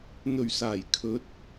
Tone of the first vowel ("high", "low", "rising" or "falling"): low